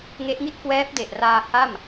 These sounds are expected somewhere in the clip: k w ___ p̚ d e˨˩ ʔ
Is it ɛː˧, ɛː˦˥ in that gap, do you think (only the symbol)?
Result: ɛː˦˥